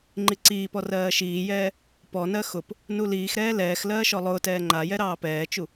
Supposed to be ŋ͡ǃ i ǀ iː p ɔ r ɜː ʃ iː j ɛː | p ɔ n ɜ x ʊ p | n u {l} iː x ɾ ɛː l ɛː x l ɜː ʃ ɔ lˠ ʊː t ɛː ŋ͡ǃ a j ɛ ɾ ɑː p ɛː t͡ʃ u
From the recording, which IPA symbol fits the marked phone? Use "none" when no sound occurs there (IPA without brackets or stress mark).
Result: l